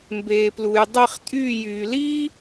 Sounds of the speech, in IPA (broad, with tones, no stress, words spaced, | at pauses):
mbeː˧plu˧j dˤe˥˧χtʼyː˥˧jyː˧ liː˥